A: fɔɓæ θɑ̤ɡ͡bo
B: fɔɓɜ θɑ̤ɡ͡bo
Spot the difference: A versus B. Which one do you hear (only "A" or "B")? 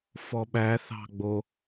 A